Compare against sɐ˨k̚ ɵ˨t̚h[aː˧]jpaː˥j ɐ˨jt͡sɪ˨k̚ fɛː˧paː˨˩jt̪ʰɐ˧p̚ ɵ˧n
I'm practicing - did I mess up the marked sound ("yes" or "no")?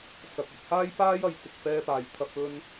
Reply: yes